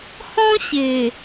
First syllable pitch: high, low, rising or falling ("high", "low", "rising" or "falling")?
high